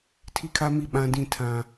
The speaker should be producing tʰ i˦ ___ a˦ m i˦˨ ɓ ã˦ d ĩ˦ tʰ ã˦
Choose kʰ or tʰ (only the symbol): kʰ